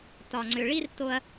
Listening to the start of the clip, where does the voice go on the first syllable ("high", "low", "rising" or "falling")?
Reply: low